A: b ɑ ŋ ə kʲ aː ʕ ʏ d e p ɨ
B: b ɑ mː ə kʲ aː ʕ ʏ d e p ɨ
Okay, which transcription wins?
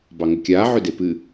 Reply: A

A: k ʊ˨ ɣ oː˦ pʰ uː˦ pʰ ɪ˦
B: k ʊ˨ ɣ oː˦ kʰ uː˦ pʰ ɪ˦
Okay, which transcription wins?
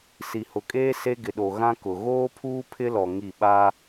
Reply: A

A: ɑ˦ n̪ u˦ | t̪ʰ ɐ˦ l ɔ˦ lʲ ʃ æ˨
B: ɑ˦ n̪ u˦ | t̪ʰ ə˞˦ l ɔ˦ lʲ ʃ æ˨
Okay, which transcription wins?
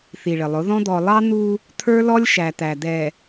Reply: B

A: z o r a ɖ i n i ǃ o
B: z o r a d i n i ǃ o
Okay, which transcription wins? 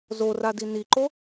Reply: B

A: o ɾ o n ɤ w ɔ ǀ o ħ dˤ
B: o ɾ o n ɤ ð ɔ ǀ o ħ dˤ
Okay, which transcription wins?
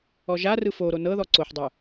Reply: B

